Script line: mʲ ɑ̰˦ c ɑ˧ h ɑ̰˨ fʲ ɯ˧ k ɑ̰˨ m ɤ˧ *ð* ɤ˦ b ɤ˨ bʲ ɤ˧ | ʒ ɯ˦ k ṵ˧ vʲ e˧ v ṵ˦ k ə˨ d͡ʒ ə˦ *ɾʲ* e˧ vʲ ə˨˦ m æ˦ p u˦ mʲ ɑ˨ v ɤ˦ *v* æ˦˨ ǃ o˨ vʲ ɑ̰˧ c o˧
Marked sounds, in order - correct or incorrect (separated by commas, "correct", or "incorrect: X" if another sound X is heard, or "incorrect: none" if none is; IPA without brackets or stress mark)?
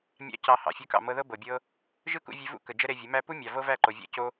correct, incorrect: ɾ, correct